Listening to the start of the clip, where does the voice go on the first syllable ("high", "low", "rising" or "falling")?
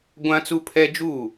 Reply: high